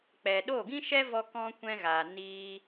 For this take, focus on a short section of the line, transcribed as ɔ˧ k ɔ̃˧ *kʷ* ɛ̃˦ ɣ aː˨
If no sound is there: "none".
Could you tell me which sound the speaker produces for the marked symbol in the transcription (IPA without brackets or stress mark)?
kʷ